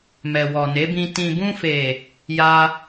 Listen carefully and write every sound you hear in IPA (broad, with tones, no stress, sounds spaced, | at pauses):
m ɛ˨ w ɔ˨ n e˨˦ b ĩ˧ t ĩ˨ b ũ˧ f e˨ | j a˦